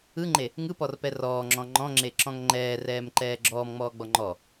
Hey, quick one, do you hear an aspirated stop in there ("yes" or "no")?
no